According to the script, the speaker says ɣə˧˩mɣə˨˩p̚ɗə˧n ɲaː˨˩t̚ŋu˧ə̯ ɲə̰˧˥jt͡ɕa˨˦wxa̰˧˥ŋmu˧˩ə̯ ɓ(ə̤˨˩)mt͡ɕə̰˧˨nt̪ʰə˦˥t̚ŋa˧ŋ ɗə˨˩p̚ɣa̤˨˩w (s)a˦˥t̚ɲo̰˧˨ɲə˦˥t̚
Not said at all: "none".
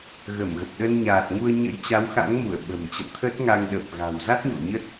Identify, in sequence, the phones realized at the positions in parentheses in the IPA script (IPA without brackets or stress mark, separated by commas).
ə̤˨˩, z